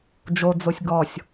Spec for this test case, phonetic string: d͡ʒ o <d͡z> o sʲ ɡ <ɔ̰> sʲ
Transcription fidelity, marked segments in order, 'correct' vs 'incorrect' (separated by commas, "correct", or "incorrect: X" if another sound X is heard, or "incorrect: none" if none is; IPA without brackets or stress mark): correct, incorrect: ɔ